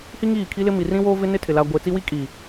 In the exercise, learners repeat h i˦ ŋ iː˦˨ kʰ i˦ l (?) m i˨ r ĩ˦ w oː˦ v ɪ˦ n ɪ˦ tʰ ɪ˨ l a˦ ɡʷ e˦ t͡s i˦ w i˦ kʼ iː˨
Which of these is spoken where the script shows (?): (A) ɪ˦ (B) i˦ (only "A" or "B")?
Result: A